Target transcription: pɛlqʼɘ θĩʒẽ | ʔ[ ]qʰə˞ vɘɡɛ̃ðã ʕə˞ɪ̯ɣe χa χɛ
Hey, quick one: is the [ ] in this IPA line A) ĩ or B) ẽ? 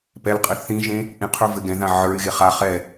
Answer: A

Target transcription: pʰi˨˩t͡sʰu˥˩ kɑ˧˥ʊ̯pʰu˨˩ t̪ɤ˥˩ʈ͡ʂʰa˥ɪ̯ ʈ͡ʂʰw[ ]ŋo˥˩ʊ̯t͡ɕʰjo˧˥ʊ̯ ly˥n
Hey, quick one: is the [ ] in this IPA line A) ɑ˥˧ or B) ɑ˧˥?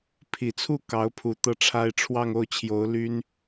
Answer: A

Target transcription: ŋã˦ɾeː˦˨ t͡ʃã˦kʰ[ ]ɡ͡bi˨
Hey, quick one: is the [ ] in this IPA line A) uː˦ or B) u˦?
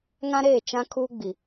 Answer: A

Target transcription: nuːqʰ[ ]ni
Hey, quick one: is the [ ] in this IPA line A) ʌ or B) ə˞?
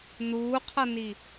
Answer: A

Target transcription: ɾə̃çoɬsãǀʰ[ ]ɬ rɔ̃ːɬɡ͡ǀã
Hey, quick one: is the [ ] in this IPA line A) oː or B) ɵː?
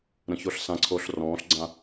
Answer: A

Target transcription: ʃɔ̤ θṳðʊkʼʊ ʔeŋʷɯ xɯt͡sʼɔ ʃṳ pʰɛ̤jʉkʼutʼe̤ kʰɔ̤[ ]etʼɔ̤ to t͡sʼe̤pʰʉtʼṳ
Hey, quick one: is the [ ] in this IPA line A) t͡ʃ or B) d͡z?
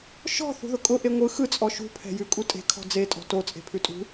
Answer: B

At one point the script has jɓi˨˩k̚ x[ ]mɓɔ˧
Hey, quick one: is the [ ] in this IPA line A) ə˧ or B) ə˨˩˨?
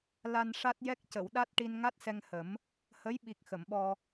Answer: B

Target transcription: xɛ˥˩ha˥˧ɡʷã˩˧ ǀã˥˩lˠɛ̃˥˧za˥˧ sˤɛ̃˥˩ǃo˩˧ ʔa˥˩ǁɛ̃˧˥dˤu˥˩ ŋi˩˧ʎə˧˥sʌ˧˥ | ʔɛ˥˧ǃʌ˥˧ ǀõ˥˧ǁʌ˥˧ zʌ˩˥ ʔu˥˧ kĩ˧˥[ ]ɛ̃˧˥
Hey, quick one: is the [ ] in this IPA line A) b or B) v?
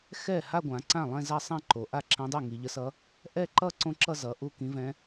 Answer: B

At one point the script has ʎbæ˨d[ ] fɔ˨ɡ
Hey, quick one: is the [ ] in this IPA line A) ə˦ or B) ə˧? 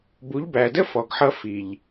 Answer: A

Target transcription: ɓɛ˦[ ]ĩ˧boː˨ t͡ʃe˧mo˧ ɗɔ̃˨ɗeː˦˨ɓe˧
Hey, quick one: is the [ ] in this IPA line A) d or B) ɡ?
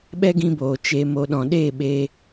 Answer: B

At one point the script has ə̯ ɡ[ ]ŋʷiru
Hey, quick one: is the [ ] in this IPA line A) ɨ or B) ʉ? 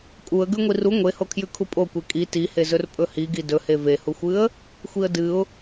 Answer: B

